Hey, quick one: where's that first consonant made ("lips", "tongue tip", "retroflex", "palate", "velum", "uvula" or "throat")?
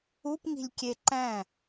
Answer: lips